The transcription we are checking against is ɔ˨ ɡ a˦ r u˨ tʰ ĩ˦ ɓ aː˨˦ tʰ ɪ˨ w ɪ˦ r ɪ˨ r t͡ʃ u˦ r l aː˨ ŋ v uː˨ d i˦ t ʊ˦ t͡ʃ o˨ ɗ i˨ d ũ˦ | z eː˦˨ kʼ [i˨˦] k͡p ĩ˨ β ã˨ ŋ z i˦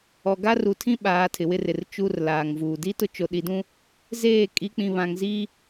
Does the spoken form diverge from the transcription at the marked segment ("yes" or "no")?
no